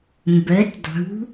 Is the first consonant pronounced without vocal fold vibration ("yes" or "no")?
no